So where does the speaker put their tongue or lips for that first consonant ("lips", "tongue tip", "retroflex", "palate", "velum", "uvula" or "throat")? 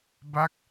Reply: lips